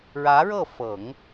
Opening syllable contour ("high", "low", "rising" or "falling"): rising